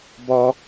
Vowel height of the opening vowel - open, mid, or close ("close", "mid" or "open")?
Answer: mid